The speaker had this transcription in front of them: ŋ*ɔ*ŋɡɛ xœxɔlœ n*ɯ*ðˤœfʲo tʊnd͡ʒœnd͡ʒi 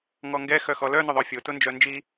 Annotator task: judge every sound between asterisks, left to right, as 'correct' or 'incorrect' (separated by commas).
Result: correct, incorrect